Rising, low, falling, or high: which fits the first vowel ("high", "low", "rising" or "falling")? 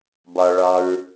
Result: low